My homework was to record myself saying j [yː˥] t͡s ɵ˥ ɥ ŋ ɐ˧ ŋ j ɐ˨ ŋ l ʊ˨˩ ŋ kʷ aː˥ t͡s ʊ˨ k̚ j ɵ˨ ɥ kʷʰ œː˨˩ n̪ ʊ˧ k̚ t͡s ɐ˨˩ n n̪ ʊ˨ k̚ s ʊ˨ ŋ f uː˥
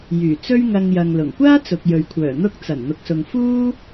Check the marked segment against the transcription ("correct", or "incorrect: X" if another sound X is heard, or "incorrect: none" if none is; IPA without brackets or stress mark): incorrect: yː˨˩